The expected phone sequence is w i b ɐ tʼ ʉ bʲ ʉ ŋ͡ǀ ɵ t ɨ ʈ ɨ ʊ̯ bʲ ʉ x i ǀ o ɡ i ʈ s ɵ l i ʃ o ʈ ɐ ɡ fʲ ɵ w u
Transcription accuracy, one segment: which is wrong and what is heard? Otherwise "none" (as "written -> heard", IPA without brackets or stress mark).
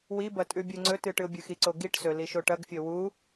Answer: none